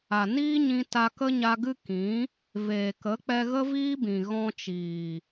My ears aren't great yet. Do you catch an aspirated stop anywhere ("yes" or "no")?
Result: no